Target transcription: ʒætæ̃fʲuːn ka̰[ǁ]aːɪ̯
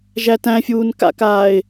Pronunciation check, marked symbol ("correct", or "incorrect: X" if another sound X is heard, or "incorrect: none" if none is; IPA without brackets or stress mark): incorrect: k